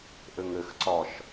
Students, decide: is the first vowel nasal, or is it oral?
oral